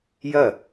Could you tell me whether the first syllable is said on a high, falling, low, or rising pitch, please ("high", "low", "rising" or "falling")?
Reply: falling